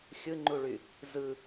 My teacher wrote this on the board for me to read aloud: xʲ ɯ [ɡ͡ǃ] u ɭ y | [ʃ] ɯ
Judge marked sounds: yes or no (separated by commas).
no, no